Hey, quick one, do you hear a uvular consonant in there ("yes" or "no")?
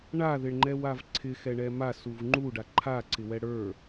no